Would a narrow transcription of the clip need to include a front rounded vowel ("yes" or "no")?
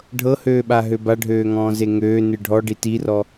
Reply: yes